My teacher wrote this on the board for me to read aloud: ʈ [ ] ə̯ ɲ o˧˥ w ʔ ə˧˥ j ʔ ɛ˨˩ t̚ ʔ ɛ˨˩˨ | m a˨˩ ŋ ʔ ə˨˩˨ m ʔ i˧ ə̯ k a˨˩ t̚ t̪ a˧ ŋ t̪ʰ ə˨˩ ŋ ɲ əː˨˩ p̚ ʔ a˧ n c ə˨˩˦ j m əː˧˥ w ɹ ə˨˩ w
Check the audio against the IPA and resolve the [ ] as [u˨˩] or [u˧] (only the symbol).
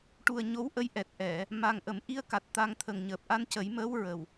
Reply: u˨˩